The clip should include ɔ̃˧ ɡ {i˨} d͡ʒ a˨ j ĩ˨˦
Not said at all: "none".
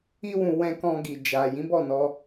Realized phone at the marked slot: i˨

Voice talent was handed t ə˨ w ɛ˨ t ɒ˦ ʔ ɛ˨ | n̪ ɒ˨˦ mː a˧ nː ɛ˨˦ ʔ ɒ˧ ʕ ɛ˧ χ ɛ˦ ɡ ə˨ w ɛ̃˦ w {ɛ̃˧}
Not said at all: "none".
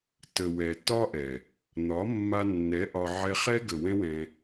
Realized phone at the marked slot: ɛ̃˧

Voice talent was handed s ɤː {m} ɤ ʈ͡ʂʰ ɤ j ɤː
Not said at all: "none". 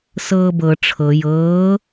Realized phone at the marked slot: b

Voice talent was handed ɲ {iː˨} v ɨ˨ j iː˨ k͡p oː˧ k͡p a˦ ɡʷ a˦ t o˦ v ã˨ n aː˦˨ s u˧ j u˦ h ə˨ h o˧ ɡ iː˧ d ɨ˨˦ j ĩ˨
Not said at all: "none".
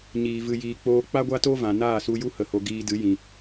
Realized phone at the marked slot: iː˨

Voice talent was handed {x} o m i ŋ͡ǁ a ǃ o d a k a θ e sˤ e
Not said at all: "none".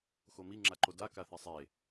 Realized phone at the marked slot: x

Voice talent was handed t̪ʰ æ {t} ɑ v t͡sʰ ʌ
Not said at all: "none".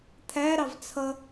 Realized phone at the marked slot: ɾ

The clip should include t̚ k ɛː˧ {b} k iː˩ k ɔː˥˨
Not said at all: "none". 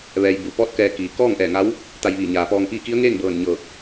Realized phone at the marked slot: none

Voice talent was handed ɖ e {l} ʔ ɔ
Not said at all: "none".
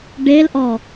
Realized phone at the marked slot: l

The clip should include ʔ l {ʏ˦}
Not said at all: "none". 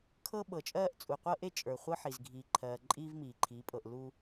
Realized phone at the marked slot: u˦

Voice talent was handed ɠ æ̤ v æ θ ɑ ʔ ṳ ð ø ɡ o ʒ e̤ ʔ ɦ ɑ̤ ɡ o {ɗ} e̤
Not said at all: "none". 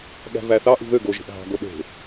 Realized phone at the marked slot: ɗ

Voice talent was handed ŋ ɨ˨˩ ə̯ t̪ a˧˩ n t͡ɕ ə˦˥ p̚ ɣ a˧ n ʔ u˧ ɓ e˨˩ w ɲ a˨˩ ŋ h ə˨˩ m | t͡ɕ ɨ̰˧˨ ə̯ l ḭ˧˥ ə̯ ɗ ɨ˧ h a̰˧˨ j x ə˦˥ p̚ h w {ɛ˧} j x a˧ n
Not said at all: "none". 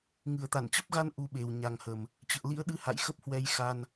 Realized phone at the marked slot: ɛ˧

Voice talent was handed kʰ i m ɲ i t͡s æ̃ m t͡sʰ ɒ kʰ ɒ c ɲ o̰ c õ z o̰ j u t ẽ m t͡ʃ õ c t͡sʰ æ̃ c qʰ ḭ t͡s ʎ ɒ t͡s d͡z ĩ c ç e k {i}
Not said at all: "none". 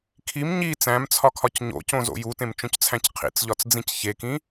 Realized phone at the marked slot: ĩ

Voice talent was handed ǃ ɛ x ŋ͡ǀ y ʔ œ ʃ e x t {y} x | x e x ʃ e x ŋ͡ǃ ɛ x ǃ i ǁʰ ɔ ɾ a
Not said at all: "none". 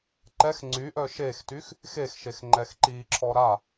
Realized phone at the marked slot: y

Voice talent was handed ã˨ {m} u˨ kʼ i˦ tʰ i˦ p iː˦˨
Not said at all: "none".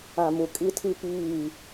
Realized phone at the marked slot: m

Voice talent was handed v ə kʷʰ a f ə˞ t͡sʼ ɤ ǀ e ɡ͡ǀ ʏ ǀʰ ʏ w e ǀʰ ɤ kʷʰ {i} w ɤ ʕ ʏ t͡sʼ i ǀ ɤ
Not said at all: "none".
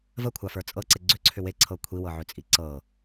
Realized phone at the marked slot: i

